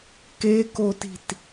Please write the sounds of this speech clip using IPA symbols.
k e k o t i̤ t

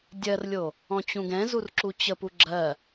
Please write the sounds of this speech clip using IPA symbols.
dʲ ɜ r lʲ o | ɔ̃ t͡ɕ ũ ɡ ɛ̃ z u r ǁ u t͡ɕ ə p u ɡ͡ǁ ɜ

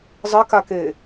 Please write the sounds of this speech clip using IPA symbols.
zˤ ɪ k a k e

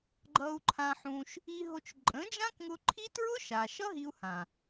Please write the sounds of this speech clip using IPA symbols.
ɡ͡ǃ ʌ˧ u̯ ǃʰ ã˧ ħ ũ˧ ʃ | i˧ ɦ o˧ t͡ʃ ǃʼ ə̃˨˦ d͡ʒ ã˦ k ŋ ʊ˧ ǃʰ i˦ t ɹ ʊ˦ ʃ a˨ ʃ ʌ˦ ɦ i˦ u̯ h ã˨

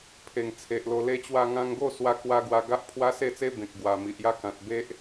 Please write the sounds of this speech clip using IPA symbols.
pʰ e˨˩ ŋ t͡sʰ e˨ ʔ l o˧ l e˧ t͡ɕ w a˧ ŋ ã˧ ŋ ɡ o˥˧ s w a˧ k w a˧ ɡ w a˧ ɡ a˦ ʔ pʰ w a˦ s e˥˧ t͡s e˦ b ẽ˨ k̚ ɡ w a˨˩ m i˨ ʔ j a˦ k ã˨ t̚ b e˦ ʔ

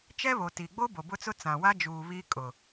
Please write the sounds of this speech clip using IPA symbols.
t͡ʃ ɛ˦ β o˨ t i˨ ɡ͡b o˦ b o˨ b ʊ˦ t͡s ʊ˦ t͡s ã˨ w a˦ d͡ʒ uː˨ β i˦ kʼ ʊ˨

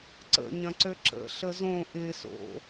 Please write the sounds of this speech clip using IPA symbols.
ǀ ə̰ ɲ ɐ̃ ǀ ø ǁ ə̰ ɬ ə z õ ʔ ɪ s o̰

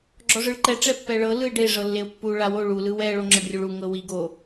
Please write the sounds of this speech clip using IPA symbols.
ɡ͡ǁ ɔ ʐ ɯ ɭ ǃ ɛ ʈ͡ʂ ɛ pː ɛ ɭ ɤ l ɯ ɪ̯ ɖ e ʐ ɤ lː e ʊ̯ pː u ɭ a w o ɭ u l ɯ w ɛ ɭ o ŋ͡ǁ ɤ ɖ rʲ u ɭ u ŋ ɤ w i ɡ o

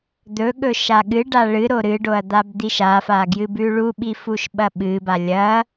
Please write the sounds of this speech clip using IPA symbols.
d̪ ɵ ɠ ɵ ʃ a ɠ ɨ ɖ a ɭ ɨ ɾ o ɾ ɨ ɖ o ɐ̯ d̪ a b d̪ i ʃ a f a ɡ j ɨ b ʉ ɭ u ɓ i f u ʃ ɓ ɐ ɓ ɨ b a lʲ ɐ

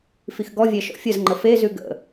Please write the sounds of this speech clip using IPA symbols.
f i x ɡ ɔ vʲ ɛ ʃ ɔ̰ fʲ ə z ŋ͡ǃ ə f e z ʉ ɡ ə̰

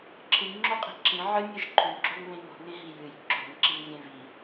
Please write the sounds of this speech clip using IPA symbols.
ǁʰ ɨ ŋ ŋ͡ǁ o qʼ i̤ ǁ ĩ ʕ ɨ nʲ ɨ ʒ ǃʰ ʉ ɡ͡ǁ o ŋ β ẽ ŋ o̤ ŋ ẽ ɦ i j ɨ j ǁ o̤ ŋ ǁ i ŋ zʲ ẽ v i

